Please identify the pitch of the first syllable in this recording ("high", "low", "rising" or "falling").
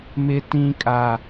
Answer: high